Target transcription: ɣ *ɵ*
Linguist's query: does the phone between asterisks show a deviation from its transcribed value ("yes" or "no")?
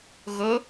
yes